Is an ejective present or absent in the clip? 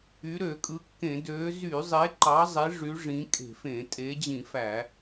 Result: present